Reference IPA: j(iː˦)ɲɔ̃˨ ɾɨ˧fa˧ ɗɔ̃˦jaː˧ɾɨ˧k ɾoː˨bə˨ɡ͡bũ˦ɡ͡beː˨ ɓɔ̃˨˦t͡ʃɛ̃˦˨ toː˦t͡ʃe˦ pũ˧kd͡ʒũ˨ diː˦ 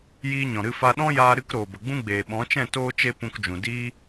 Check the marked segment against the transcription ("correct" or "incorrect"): incorrect